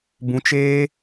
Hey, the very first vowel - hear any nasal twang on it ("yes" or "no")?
yes